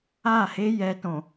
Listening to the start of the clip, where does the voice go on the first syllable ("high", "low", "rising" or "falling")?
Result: falling